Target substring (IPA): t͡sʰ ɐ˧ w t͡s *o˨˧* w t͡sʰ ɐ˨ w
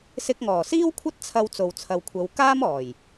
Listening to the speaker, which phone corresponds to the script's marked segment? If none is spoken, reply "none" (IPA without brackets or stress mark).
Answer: o˨